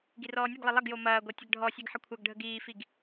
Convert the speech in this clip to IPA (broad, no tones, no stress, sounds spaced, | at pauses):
ɡ i r ɔː nʲ e ɡ lˠ e lˠ ɐ ɡ j o m ɐː ɡʷ ɤ tʲ ə ɡ ɖʱ ɔ sʲ e ɡ ħ ə kʷʰ ɤ ɡ ɖʱ ə ɡ iː f i ɡ